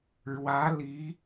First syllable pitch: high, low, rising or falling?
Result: rising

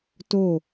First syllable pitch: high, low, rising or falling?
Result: falling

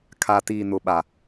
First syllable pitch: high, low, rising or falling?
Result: low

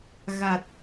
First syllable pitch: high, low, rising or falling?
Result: low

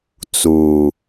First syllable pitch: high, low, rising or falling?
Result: low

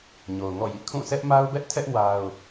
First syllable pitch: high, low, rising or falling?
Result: low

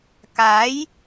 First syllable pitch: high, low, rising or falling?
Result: rising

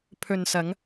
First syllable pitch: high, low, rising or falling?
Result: low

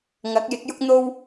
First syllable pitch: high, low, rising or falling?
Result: rising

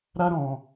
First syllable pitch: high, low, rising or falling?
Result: high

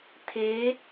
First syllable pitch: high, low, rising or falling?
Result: rising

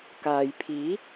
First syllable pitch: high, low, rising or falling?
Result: low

